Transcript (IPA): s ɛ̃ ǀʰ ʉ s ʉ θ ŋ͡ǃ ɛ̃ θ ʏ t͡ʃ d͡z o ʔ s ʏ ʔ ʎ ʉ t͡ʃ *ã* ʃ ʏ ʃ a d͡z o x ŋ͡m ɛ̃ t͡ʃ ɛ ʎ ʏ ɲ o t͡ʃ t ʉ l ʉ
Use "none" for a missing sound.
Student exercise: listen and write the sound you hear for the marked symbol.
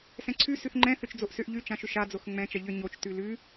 ã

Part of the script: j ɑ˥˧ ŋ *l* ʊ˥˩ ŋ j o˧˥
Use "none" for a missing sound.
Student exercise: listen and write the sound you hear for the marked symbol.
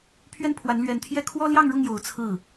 ɻ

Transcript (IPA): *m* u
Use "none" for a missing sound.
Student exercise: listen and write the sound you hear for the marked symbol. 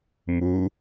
m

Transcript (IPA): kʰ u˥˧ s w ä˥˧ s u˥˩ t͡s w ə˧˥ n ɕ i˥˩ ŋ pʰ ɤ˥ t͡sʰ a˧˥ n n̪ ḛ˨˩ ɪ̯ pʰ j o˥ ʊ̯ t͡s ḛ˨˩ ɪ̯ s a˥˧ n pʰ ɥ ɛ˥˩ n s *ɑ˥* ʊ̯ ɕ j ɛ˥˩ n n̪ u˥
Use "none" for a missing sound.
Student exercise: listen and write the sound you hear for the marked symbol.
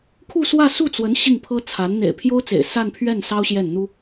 ɑ˥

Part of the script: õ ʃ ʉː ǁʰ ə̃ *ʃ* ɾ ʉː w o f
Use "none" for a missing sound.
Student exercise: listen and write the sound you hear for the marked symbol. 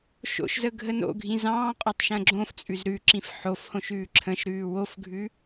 ʃ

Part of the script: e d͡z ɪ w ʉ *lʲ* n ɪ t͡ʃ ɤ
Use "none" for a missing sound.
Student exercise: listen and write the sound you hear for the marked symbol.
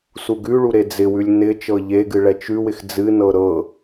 lʲ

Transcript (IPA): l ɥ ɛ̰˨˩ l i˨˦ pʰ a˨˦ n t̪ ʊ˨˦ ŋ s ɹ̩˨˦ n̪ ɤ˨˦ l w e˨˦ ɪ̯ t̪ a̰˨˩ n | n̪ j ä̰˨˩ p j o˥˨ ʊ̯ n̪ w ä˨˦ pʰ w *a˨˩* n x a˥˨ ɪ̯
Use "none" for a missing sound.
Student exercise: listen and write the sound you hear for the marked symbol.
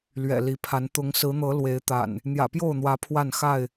a˥˨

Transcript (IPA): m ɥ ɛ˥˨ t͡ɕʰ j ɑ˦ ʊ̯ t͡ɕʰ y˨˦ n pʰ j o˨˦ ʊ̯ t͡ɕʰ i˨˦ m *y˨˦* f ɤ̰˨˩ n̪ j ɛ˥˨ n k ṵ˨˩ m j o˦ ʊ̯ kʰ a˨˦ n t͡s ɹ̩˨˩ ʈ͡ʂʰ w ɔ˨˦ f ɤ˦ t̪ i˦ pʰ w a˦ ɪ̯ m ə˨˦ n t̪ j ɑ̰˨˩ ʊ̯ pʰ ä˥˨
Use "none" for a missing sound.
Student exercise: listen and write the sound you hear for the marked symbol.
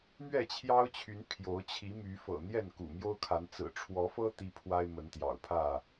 y˨˦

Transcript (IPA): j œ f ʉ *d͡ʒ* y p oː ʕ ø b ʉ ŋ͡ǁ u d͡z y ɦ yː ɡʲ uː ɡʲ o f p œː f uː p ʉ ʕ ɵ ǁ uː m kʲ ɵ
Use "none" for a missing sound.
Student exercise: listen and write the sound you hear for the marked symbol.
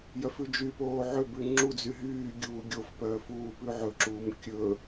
d͡ʒ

